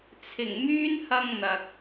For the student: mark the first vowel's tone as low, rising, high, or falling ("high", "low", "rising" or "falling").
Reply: low